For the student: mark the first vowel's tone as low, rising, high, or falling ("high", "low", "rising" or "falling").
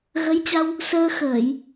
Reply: rising